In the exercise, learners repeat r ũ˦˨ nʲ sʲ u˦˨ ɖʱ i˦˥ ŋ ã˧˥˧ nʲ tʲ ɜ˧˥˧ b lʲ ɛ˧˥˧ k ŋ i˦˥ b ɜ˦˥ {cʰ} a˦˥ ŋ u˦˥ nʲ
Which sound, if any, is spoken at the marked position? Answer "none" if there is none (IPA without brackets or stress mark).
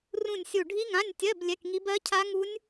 cʰ